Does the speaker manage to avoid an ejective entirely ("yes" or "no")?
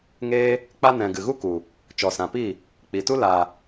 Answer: yes